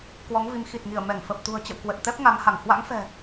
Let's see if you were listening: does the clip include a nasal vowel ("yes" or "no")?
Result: no